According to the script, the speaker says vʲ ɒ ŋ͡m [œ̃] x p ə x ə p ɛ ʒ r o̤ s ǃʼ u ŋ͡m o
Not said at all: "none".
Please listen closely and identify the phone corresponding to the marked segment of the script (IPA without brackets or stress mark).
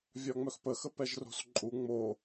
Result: œ